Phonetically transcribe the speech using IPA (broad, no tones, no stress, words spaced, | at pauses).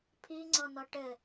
pʰiŋ͡ǀɔ nɔʈɘ